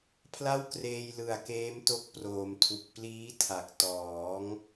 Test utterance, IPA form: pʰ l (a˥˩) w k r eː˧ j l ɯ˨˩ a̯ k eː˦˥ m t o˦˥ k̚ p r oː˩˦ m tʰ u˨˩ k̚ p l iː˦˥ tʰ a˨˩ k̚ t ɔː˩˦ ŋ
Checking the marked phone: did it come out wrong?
no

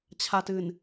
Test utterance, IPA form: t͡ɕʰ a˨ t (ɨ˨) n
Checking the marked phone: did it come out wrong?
no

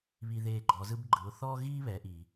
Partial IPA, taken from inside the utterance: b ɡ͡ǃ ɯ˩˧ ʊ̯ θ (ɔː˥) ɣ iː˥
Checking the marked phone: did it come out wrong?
no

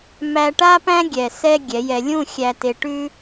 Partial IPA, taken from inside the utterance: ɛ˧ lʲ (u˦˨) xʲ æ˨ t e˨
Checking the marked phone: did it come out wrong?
yes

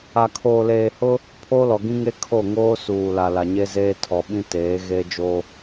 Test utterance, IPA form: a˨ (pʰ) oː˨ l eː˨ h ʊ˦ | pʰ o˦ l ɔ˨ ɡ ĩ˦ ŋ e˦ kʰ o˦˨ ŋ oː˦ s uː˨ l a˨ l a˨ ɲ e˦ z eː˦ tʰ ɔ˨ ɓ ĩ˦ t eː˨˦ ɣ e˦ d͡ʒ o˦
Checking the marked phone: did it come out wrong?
yes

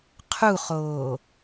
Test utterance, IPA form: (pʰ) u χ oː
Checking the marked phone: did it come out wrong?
yes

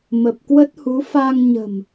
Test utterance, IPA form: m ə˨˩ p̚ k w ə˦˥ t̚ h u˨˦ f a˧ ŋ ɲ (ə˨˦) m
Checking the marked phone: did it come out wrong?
yes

